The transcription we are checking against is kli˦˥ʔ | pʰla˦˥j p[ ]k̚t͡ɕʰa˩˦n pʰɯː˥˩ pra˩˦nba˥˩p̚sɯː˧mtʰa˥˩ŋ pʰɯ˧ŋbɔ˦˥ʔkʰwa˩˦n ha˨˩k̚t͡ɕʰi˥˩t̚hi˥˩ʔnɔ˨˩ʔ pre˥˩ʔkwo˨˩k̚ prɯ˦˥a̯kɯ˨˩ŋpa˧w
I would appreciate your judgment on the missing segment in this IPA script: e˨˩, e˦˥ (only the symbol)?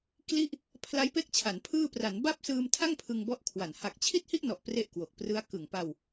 e˦˥